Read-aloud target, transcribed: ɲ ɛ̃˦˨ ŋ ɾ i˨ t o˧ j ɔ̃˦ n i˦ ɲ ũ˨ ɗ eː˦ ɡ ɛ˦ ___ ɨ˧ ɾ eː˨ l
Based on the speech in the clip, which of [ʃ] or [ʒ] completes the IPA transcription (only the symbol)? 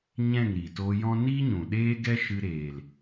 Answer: ʃ